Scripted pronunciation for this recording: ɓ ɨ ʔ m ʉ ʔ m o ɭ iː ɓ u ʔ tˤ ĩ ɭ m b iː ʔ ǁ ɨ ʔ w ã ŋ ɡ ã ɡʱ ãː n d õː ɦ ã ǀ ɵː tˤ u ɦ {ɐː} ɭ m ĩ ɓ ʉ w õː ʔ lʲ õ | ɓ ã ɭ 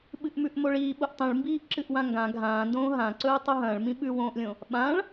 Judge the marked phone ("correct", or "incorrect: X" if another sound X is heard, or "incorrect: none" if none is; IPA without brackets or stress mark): incorrect: ɐ̃ː